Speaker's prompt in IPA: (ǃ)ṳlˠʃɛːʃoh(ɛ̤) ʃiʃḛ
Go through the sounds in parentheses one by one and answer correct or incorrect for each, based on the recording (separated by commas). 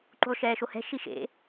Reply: correct, correct